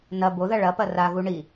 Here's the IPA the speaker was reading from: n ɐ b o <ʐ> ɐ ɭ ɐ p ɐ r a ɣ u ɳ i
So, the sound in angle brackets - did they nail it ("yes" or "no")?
no